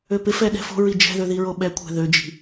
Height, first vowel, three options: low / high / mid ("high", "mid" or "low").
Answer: mid